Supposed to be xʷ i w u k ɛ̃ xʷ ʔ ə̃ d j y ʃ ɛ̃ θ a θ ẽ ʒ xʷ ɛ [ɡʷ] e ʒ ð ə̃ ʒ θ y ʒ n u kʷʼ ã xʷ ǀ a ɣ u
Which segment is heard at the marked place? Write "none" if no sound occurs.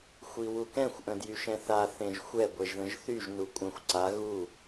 ɡʷ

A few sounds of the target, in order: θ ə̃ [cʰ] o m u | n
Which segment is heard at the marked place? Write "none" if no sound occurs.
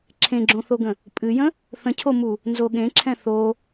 cʰ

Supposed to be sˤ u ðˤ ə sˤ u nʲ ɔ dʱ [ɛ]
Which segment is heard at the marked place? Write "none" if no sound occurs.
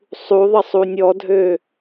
ø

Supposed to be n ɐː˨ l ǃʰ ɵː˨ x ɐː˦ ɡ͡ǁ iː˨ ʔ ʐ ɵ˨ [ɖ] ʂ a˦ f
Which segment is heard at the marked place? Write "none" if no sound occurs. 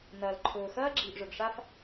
ɡ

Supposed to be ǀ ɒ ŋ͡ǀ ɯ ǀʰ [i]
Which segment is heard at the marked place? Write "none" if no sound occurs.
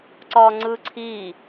i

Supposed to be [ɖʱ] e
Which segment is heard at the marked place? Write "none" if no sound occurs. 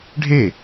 ɖʱ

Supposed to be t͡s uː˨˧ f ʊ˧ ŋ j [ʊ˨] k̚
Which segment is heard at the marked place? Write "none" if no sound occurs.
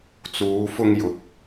ʊ˨˥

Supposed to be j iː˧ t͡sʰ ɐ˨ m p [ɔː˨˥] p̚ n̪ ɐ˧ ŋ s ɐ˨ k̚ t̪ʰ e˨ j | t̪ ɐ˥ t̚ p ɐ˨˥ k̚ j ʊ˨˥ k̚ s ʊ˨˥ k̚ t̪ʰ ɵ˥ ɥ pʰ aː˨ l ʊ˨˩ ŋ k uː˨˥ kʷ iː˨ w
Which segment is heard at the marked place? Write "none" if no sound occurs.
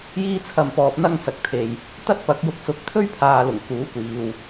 ɔː˨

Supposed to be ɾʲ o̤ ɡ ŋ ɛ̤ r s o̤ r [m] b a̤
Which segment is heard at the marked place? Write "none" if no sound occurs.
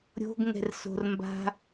m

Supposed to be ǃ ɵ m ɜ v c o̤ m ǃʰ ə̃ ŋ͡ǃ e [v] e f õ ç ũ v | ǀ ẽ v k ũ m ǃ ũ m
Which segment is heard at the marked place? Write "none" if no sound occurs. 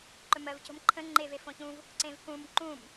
v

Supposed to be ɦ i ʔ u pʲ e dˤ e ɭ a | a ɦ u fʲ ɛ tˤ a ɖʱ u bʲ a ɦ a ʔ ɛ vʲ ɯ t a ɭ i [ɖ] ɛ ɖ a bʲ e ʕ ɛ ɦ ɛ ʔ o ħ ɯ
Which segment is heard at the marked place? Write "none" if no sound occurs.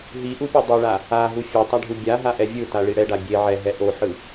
ɽ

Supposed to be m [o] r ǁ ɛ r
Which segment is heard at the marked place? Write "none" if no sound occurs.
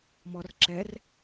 ɔ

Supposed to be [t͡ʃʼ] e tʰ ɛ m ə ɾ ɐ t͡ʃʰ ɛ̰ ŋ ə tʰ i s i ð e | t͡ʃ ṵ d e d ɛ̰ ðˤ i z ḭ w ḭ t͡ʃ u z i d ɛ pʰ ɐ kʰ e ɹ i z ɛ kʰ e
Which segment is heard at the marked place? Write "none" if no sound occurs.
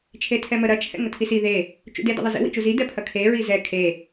t͡ʃʰ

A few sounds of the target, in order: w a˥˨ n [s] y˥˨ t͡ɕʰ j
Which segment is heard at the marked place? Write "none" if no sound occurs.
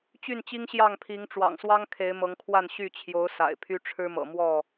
ɕ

